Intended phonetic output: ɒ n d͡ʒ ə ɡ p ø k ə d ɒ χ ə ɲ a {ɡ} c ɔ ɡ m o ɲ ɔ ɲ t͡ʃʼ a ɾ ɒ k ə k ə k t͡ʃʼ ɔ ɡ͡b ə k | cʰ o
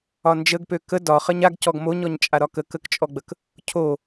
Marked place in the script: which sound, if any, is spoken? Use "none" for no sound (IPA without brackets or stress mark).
ɡ